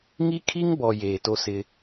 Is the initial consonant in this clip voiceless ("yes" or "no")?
no